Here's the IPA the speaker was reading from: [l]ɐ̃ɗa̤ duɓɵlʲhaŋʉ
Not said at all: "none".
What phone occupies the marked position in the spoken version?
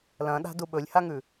l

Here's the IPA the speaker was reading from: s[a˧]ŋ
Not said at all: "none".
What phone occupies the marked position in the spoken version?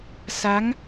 a˦˥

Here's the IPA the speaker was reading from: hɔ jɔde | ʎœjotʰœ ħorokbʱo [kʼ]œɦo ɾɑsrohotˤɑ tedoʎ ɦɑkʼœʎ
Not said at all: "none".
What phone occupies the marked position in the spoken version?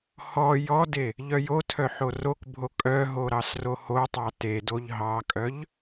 kʼ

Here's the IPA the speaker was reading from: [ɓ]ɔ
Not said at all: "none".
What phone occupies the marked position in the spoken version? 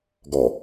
ɡ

